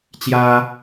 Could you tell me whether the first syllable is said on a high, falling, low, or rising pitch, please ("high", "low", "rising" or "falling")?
high